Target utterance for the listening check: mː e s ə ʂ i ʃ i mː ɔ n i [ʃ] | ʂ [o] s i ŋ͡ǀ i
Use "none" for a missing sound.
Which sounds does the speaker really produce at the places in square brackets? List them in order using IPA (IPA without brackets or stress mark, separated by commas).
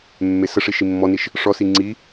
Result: ʃ, ɔ